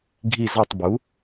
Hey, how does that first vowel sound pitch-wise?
falling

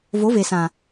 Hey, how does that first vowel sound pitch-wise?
rising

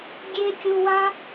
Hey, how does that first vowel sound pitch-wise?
high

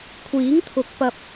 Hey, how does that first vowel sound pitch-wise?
rising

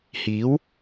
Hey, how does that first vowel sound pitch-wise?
rising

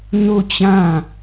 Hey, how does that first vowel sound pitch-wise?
falling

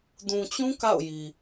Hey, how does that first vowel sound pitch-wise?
low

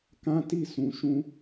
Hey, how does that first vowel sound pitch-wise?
high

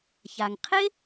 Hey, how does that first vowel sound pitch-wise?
low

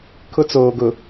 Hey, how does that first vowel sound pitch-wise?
high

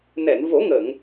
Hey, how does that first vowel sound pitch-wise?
low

